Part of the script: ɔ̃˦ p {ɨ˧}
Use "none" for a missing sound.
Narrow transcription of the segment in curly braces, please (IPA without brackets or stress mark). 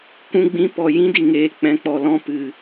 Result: ɨ˨